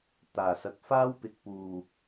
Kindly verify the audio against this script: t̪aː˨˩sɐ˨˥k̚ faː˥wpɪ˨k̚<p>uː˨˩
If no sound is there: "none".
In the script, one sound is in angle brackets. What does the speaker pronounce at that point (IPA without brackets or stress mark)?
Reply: p